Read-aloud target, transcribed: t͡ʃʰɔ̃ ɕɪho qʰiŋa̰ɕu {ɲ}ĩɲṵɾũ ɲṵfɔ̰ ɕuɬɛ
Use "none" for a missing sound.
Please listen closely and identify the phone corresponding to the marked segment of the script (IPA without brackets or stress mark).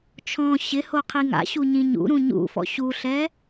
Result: ɲ